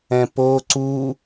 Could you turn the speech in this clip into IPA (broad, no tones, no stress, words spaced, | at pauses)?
ɛ̃po ǀu